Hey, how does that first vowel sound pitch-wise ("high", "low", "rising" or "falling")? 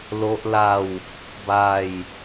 high